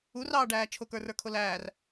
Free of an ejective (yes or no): yes